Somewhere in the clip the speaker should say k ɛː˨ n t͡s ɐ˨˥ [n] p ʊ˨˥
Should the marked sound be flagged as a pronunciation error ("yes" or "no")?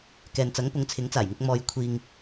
yes